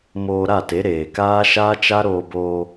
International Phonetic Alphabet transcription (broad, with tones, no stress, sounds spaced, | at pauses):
m oː˧ ɾ a˦˨ t e˨˦ ɾ eː˨ k aː˦ ʃ aː˦ t͡ʃ a˦ ɾ oː˧ b oː˧